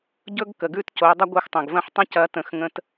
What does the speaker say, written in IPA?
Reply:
ɟ ɵ˦ ɡ k ə˩ ɡ ʉ˥˩ t c o˨˦ dˤ ɐ˦ ɡʷ ɯ˨˦ x tˤ ɐ̃˩ ɡ v ɐ̃˥˩ ħ tˤ ə̃˦ c ɐ˨˦ t ə̃˩˧˩ x ŋ ə̃˦ t

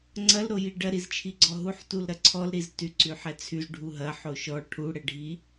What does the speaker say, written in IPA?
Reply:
ŋ͡ǀ ɐ l ɾ o j i ɖ ɐ ɾ i z t͡ʃʰ i ɡ͡ǀ ɔ ɦ u ħ t u l ɾ ɐ ǀʰ ɔ l ɾ i z t y ǀ y ħ ɛ t͡sʰ y z ɖʱ u ɦ ɐ ħ o ʃ ɔ ʈʰ u ɽ ɛ ɖʱ i

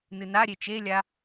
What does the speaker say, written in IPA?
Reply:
n ɨ n a ɾʲ e t͡ʃ e lʲ a

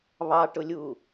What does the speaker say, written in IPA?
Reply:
β ɑ ʈ ʊ lʲ uː

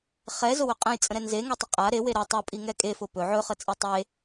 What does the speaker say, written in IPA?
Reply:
χ ɛ z ʊ w ɵ qʼ ɛ̃ j t͡sʼ ə̃ ɾ ɛ n z e ŋ ɛ tˤ ə qʼ a ɾ e w e ɾ ə tˤ ɵ pʼ i ŋ ɛ kʼ e f ʊ p ɵ ʕ ɵ χ ə t͡sʼ i tˤ e

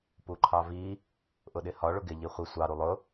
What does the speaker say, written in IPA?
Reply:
p u ǃʰ ɑ v i | ʔ ʊ ɗ ɪ h ɒ ɭ ʊ ɡ ɪ ʎ i χʷ ɪ sʷ ɑ ɾ u lˠ ʊ

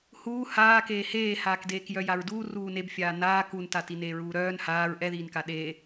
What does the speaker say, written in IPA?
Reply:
h uː h aː k eː h eː h aː k d eː k j œ j a ɹ d uː r uː n e b fʲ aː n aː k u n t a t i n eː ɹ uː ɾ œː n h aː ɹ ʔ ɛ ð iː n k a ɗ e

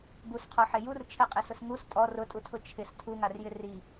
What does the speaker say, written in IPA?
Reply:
b u s qʰ ɔ ħ e j u r t͡ʃʰ ɛ qʼ ɪ s ʊ s ŋ u s tʼ ɔ r ʊ tʼ u tʰ ʊ t͡ʃʰ ɪ s tʰ u ŋ a r j ɪ r i

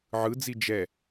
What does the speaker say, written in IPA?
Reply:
ʕ ɯ d͡z i d͡ʒ ɛ

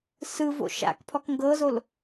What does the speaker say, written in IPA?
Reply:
s ɯ v o̰ ʃ a̰ k pʰ ɔ k ŋ ɡ ɤ z o l

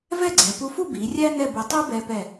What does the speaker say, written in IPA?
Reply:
v ɛ˥˧ ɡ͡ǀ ɛ˩˧ p u˧ f u˥˧ b i˩˧ rʲ æ˥ n ɛ˥˧ b u˧ tˤ u˥ b ɛ˧ p ɛ˧˩

